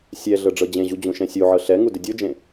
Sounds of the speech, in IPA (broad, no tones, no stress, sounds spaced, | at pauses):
sʲ ɛ ɮ ɤ ɖ͡ʐ ɤ d͡ʑ ẽ ʑ u d͡ʑ ũ ʃ ɛ̃ sʲ u ʕ ɤ ɬ ɛ ŋ u d ɪ dʲ o d͡ʒ ẽ